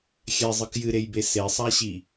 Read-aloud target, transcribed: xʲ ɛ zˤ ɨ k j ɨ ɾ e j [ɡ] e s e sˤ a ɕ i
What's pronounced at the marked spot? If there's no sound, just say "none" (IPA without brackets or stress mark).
b